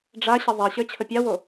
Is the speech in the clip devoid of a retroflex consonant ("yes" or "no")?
no